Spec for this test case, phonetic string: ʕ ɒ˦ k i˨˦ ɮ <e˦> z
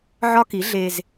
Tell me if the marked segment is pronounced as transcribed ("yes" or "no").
yes